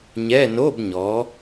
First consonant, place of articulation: palatal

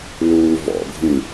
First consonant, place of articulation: alveolar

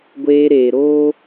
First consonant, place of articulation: velar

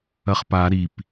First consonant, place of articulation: uvular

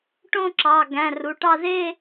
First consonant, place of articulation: retroflex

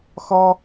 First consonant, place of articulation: velar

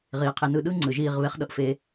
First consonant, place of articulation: uvular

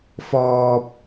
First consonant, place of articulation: labial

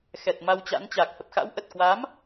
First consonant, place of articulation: velar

